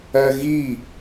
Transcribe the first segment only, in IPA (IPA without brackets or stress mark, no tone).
ɜ